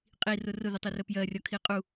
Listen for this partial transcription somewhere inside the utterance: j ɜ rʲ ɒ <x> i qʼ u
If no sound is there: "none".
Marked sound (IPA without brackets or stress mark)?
kʰ